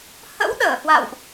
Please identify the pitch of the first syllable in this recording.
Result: rising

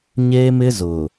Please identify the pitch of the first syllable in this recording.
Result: high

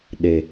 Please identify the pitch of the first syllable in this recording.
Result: low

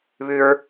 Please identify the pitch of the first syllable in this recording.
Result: high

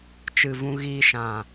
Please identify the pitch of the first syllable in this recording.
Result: low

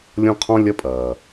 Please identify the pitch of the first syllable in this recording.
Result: high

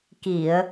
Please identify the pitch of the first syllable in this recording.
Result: low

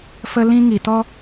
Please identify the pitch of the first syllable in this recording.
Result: high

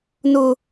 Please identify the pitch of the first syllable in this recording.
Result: high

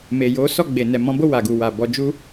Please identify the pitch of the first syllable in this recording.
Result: low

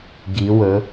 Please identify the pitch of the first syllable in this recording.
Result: rising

